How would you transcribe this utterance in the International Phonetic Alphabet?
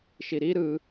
ʃ i ɾ i ɾ ɯ

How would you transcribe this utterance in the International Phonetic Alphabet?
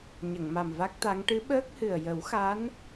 ɲ ə˨˩˨ ŋ m a˨˩ m v a˦˥ k̚ t̪ a˧˥ ŋ ʈ ɨ˧˥ ɓ əː˦˥ k̚ h ɨ˨˩ ə̯ j ə˨˩˦ w x a˧˥ n

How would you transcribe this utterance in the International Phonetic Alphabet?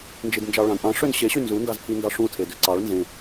n d͡ʒ i d n d͡ʒ ɑ ɭ ɑ̃ d ʔ ɑ̃ ʂ ø n ɕ e ɕ y n z u n d ɑ z pʰ i n d ɑ ʂ ũ tʰ e d ø ǀ ɑ ɭ n z ẽ

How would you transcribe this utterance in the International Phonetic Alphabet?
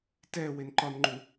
t ɛ w e n ǃ ɒ n ŋ͡ǃ u

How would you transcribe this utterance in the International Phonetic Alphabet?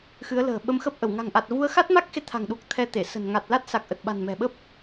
x ɨ˨˦ ə̯ l ə̤ː˨˩ ɓ ə˧ m x ə˦˥ p̚ ʔ ə˧˩ w ŋ a̤˨˩ ŋ ʔ a˨˩ t̚ v u˧ ə̯ x a˦˥ t̚ m a˦˥ k̚ x e˨˦ t̪ʰ a̤˨˩ ŋ ɗ u˨˩ k̚ t̪ʰ ɛ˧ t̪ e˧˩ s ə̤˨˩ n ŋ a˨˩ t̚ l a˦˥ t̚ s a˨˩ k̚ ʔ ə˨˩ t̚ ɓ a̤˨˩ n m ɛ̤˨˩ ɓ ə˦˥ p̚

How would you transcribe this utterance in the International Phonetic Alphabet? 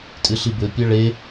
tʼ ɨ ɬ i b ɘ pʲ ɐ ɭ e

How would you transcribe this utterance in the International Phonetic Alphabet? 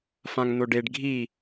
f ã ŋ n o ɖ e ɖ ɡʱ i

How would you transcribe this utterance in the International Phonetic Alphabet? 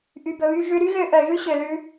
ʔ y˨ b ɵ˨ β y˧ ʒ ʉ˧ ɾ y˦ ɣ ø˧ ʔ œ˨ ʒ ʉ˦ ɕ ø˧ l ʉ˦

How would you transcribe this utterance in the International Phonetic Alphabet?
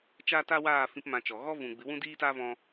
t͡ʃ a˦ t a˦ w aː˦˨ f ĩ˧ p m ã˧ t͡ʃ ɔ˨ ɣ ɔ˦ v ũ˨ ɡ͡b ɨ˨˦ w ũ˦ d iː˦ t a˦ v ɔ̃˦

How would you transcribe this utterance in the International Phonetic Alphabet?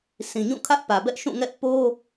sʰ ĩ˨ ɲ ũ˦˨ kʰ ä˦ ʔ p ä˨ b ɛ˦ ʔ ʃ ũ˦˨ ŋ ɛ˦ ʔ p o˦

